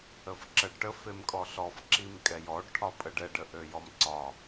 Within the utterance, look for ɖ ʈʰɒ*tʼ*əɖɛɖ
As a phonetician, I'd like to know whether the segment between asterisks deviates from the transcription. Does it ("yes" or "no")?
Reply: yes